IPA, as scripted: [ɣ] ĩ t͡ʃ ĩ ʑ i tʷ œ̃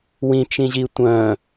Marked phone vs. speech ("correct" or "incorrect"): incorrect